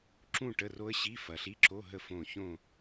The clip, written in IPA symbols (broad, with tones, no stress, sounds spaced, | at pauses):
ǁ ũ˥˧ ʈ ə˧˥˧ r o˦˥ ə̯ ɕ i˧˥˧ f ɐ˨ ɬ i˧˥˧ ǁ o˧˥˧ ɦ ə˥˩ f õ˥˧ ç õ˥˧